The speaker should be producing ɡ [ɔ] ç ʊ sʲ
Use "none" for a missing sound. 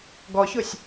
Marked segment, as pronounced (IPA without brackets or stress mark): ɔ